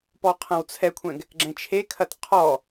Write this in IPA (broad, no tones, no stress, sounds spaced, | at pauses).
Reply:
p ɔ qʰ ɐ̃ w t͡sʰ ɛ kʷʰ ɛ̃ ɡ | ɡ͡ǁ ɛ̃ t͡ʃʰ e kʰ ɐ t qʰ ɔ